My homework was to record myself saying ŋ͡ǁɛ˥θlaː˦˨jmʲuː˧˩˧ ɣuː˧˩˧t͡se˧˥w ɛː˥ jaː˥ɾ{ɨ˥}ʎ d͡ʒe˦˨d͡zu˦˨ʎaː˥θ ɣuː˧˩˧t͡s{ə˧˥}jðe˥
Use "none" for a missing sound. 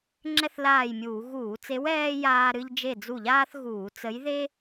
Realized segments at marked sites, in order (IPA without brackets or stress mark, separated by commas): ɨ˥, ə˧˥